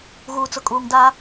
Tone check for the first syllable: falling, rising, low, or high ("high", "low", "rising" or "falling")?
low